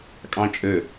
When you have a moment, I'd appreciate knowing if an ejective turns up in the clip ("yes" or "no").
yes